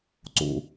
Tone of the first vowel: low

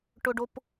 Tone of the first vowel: high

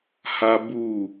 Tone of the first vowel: high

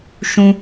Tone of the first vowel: low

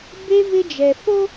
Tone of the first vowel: high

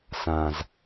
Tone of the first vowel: low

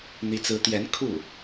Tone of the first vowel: rising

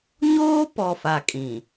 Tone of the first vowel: high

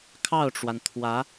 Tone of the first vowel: falling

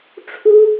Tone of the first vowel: high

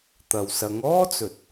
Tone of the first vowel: low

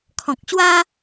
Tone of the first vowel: low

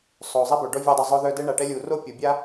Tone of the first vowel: low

